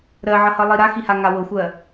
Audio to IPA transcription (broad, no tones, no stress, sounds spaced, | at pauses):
ɾ ɜ ʕ ʌ h ʌ lˠ i ɾ a x i h a ŋ a w ɤ xʷ ɜ